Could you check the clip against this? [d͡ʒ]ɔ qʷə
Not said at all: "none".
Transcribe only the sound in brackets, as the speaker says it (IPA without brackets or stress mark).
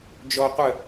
d͡ʒ